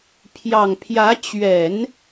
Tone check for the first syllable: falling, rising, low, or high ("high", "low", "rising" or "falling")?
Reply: low